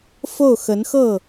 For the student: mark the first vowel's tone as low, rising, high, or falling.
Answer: falling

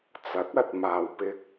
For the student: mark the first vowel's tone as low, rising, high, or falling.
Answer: rising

